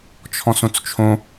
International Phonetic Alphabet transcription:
t͡ʃʰ ɔ̃ s õ t͡s t͡ʃʰ õ

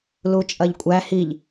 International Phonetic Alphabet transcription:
l u t͡ʃʼ ɐ ʎ kʷʼ æ h i ʎ

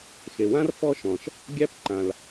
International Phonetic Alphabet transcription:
x e˩ w ã˥ r f ɔ˥ ʃ ɔ̃˩ ʃ | ɡʲ æ˥ p ǃ ã˩ l

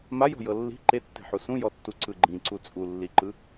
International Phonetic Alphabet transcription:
m a j ɔ̤ j ɤ lː i̤ ǃ e tː e̤ ħ u s ũ j ɔ tː u ǀ ɯ ɡ͡ǃ ĩ ǀ u t͡sʼ u lː i ǃ ɯ

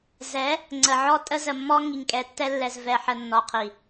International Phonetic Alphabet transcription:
z ɛ˨˦ | ŋ͡ǀ ə˨ ʕ ɔ˦ tʼ ə˦ z ə˨ mː ɔ˦ ŋ i˨ ŋ kʼ ɛ˨ tː ɛ˦ lː ɛ˨ z v ɛ˨ ħ ə˨ nː ɔ˨ qʰ i˨

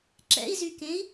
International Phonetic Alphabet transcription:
ǁ ɛ̰ i̯ z y k ẽ i̯

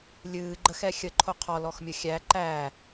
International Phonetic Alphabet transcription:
lʲ ɨː ɡ͡ǃ ə x ɛ xʲ ə ǃʰ o qʰ ɔ l ɔ x mʲ ə xʲ æ ǃ æ

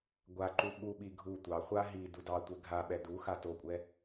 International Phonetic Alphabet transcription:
ɡʷ a ǃ u ɓ u ɓ i ɡʱ u tʷ ɑ χʷ a ɦ i d u d ɑ tʷ e ɡʱ a ɓ ɛ d u x a t o kʷʼ ɛ

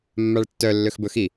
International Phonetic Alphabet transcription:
mː a ɭ tː œ lː ø x b ɵ x i

